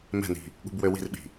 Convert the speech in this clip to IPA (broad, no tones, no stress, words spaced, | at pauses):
mɛ̤ni̤ | ɠṳbwøwi̤rɓi̤